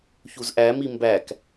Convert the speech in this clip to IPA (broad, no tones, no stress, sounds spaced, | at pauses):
ç u z ʔ æ m i m b æ k